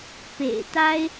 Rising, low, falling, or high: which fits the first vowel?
low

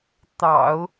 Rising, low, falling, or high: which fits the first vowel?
low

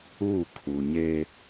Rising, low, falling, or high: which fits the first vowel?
falling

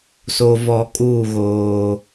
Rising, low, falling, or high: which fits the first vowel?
low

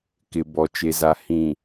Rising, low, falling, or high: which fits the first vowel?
low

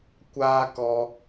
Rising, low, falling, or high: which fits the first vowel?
high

